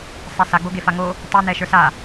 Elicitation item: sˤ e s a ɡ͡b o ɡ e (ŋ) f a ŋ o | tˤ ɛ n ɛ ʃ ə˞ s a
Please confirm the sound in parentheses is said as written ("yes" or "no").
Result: no